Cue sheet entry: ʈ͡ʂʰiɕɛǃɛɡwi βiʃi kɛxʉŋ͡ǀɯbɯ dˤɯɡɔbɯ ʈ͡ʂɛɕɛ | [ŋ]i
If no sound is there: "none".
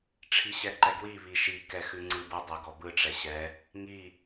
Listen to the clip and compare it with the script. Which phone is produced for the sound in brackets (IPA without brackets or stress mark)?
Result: ŋ